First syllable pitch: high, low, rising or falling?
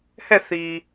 falling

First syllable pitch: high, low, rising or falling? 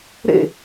falling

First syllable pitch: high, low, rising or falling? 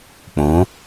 rising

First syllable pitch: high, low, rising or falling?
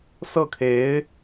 falling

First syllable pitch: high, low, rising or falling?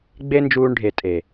high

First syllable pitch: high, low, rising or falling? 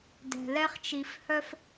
low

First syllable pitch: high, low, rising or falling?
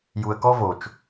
low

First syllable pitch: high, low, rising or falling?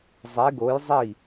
rising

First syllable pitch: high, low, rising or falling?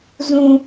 high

